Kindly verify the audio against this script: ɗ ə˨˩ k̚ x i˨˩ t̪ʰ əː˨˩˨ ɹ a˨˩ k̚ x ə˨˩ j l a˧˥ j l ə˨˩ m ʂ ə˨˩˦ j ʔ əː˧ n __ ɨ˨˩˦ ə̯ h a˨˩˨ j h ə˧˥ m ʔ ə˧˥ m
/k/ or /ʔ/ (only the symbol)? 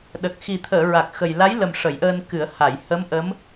k